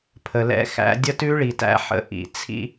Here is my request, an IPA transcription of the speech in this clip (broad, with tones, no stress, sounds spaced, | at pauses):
pʰ ə˨ l ɛ̰˦ x æ̰˦ dʲ ə˦ t ʉ˦ ɭ i˨ t æ̰˦ ħ ə̰˦ ʔ ḭ˨ t͡sʰ ḭ˦